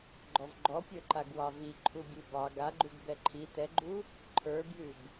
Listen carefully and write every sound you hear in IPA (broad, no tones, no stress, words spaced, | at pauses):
ɡ͡ǃɔvɡ͡ǃɔpʲə˞ ǃaɡwɑvi ǃʰubʲʉbɑ ɡaɡ͡ǃuɡ bɛǃʰi tɛɡ͡ǃu | ǃʰə˞bjʉɡ